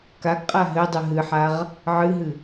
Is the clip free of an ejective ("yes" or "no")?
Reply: no